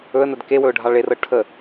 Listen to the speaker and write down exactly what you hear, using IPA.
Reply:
ɵə̯nəd kewɵʊ̯ɖʱɑ ɭerɤ ʈʰə

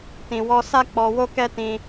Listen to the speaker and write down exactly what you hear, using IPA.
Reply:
tĩ˧wɔ˦ sa˦k͡pɔ˧wo˦kɛ˦ tĩ˦

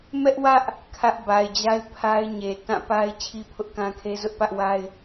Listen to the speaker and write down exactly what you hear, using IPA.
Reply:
mɛ˦ʔwä˦ʔ | kʰä˦ʔba˨ɪ̯d͡ʑa˦ɪ̯ pʰa˦ɪ̯ɲe˨ tã˦˨ pa˦ɪ̯ t͡ɕʰi˦pʰʊ˦ʔkã˦kʰe˦ zʊ˦ʔpä˦ʔwa˦ɪ̯

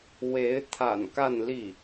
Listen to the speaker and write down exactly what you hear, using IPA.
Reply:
we˧˥ɪ̯ t̪ʰa̰˨˩nka˥˧nli˥˩

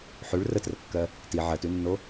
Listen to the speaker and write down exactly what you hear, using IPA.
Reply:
ħʉɭ rətrəkːɜ | ti ʕɜtʉnːo

